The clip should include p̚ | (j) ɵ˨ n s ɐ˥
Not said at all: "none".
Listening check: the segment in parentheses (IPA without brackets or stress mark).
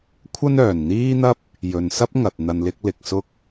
j